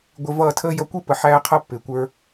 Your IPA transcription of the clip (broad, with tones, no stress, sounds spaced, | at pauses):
ɡʷ ɪ˧ v ʌː˦˨ tʰ əː˦ j ʌ˧ kʷ i˦ p ə˨ ħ æː˦ qʰ ʌ˦ pː ɪː˨ kʷ ə˞˧